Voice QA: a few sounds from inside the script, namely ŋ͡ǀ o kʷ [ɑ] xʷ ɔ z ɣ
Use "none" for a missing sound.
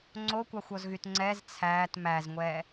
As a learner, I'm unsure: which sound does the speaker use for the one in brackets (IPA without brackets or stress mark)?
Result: ɑ